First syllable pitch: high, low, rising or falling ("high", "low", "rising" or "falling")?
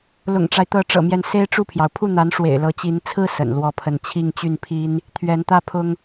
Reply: low